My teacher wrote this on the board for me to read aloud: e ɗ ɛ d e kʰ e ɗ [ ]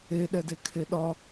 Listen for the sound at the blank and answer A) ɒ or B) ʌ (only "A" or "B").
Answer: A